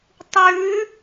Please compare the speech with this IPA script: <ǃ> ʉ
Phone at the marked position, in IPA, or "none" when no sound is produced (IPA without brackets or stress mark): tˤ